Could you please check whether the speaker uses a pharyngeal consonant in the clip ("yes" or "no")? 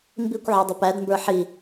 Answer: yes